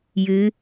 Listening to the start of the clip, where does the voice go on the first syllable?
rising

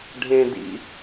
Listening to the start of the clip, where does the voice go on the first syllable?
low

